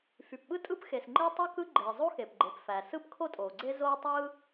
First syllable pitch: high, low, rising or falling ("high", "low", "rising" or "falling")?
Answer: low